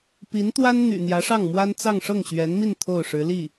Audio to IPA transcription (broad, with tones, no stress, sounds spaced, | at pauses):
p i˧˥ n t̪ w a˥ n n̪ y̰˨˩ n̪ j ä˧˥ ʂ ɑ˥˩ ŋ m w a˥ n t͡s ɑ˥˧ ŋ ʂ ɤ˥˩ ŋ ɕ ɥ ɛ˧˥ n m i˥˧ n t̪ʰ o˥˩ ʊ̯ ʂ ɻ̩˧˥ l i˥˩